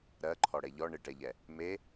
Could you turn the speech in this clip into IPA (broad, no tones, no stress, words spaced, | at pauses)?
ɾɜǃʰɔɽɛ ʎɔ ɳɪʈɛʎɛ | me